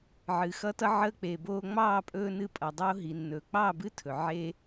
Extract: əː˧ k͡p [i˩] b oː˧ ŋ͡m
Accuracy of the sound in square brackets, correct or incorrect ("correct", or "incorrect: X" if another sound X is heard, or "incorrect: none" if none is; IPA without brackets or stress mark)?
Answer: incorrect: e˩